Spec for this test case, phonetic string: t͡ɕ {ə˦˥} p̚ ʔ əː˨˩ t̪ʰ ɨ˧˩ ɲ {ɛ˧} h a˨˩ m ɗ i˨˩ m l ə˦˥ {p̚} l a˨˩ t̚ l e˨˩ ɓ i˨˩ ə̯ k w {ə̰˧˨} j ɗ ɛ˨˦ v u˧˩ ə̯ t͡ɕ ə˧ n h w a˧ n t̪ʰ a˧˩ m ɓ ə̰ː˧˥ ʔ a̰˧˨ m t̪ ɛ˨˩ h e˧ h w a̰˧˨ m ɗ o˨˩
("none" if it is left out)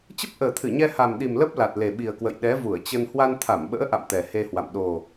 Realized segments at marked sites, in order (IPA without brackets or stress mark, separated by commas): ə˦˥, ɛ˧, p̚, ə̰˧˨